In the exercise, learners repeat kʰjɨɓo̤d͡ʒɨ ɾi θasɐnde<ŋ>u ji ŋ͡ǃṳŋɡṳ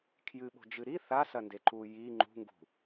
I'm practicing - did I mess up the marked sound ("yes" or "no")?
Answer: yes